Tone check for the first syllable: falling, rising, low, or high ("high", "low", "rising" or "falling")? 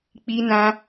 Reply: high